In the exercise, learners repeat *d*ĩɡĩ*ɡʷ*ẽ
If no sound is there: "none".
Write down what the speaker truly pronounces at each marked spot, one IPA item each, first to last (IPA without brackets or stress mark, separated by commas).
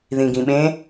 ð, ɓ